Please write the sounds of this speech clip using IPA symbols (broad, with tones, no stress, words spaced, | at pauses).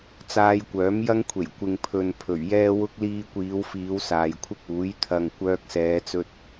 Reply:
t͡saː˧jkʷœː˨˥mjɐ˥ŋkʷʰe˨˩j kʷɪ˨ŋpʰɵ˨n pʰɵ˨˩ɥjɛː˥ wʊ˧k̚ liː˧kʷiː˨˧wfiː˨˧w saː˨jkʷʰɪ˥k̚uː˨˥j t̪ʰɐ˨ŋ kʷœː˧k̚sɛː˨˧t͡sɵ˧t̚